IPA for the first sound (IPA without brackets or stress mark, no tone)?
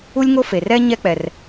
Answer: u